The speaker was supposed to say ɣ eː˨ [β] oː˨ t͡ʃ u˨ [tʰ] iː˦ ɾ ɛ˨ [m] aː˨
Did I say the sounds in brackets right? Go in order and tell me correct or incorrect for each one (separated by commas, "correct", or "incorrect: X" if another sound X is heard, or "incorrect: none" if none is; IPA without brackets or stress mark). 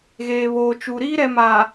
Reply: correct, incorrect: ɾ, correct